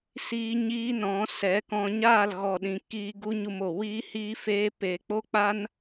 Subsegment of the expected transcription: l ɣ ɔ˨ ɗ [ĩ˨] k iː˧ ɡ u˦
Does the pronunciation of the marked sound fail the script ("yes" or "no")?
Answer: no